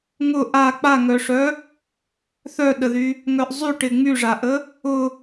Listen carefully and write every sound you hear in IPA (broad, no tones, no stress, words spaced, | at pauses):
ŋʊ ʔa k͡paŋœʂœ | θœɗəðy | ŋœʔzˤyʈɪ ŋ͡myʐaʔə | ʊ